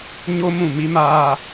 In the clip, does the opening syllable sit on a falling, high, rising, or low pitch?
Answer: high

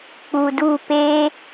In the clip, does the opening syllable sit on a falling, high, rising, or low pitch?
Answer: low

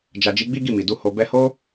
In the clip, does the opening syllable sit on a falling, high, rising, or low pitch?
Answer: low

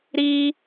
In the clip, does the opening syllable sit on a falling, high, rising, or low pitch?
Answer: high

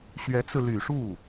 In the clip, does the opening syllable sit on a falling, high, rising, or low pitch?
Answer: rising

